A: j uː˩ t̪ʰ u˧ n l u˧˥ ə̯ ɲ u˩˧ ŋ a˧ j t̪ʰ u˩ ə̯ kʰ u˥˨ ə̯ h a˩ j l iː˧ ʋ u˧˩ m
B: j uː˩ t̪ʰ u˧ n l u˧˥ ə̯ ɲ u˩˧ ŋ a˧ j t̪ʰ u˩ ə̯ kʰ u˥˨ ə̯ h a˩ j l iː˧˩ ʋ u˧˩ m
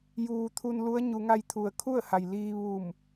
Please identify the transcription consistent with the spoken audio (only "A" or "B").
A